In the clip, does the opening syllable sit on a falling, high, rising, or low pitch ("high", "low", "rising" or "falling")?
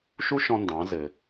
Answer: high